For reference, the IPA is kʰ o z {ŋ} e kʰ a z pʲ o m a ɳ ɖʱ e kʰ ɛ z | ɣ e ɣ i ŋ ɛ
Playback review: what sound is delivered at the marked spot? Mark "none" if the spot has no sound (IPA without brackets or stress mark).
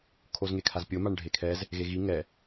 ŋ